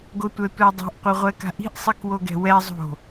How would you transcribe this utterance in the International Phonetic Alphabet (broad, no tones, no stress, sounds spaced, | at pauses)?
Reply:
ɡ o tʷ ɛ tʷ ɛ dˤ o̤ ʔ qʷ ɘ ʁʷ ɛ k a̤ ʔ i̤ ʔ sˤ i k w o ɡ ɛ̤ w ɛ zˤ o̤